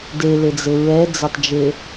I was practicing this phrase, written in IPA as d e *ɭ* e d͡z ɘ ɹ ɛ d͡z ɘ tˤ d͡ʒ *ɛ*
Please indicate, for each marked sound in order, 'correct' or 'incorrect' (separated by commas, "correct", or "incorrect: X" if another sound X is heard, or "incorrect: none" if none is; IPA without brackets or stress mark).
incorrect: l, incorrect: e